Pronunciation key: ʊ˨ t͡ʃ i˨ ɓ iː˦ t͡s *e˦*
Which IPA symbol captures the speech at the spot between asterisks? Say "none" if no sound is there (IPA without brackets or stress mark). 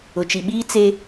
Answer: e˦